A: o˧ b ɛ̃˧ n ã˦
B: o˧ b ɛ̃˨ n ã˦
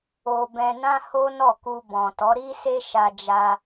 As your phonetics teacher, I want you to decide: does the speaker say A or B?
A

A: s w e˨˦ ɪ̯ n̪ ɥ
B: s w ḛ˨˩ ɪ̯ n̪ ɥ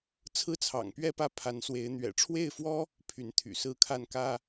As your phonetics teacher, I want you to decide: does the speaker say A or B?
A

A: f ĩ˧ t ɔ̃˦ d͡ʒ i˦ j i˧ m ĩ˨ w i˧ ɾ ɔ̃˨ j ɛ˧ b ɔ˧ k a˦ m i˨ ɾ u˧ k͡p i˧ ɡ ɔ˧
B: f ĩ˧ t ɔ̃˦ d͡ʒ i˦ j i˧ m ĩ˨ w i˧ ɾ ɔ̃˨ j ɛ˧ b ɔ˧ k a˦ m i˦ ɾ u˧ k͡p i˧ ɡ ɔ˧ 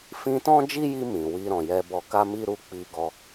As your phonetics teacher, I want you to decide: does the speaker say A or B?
B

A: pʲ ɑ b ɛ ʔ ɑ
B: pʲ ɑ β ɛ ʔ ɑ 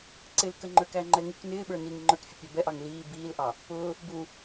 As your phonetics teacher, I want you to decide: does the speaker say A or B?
A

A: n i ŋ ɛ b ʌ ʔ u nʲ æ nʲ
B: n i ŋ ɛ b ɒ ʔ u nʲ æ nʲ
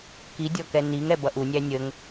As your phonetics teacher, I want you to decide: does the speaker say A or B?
A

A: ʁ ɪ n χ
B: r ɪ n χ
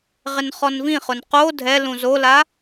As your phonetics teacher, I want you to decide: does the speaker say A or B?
A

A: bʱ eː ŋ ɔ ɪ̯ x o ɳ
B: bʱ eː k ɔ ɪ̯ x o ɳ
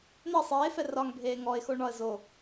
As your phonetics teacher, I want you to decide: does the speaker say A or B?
A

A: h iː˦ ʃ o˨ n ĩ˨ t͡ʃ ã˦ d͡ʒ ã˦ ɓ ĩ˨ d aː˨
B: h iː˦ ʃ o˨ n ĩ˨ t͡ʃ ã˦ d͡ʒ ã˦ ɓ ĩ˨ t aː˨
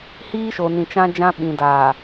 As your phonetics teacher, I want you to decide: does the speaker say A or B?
A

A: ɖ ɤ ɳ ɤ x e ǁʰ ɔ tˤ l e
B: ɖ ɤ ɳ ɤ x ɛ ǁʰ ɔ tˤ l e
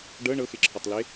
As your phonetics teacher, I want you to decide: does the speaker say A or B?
A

